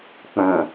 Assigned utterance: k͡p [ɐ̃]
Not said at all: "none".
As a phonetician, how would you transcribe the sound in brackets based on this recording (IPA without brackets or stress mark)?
ɐ̃